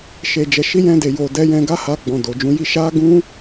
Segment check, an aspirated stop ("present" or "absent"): absent